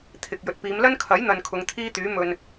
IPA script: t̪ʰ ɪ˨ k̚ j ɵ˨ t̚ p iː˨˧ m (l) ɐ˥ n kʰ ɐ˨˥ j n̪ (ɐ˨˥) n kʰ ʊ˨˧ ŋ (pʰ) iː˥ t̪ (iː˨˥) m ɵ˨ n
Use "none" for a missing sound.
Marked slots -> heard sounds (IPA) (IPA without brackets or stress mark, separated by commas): l, ɐ˨, t̪ʰ, yː˨˥